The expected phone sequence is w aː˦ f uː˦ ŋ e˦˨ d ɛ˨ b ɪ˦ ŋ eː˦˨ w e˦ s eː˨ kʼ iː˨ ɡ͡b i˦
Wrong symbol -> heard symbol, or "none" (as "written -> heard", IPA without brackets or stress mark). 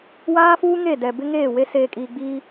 none